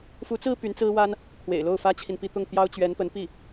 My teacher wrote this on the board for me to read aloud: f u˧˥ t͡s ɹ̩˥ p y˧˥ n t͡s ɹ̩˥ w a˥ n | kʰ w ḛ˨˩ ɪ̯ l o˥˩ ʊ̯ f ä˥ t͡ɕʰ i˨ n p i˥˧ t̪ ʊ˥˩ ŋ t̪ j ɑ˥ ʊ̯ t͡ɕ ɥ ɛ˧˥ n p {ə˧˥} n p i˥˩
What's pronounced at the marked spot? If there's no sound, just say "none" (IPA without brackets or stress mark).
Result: ə˧˥